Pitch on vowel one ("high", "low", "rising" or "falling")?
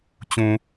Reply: low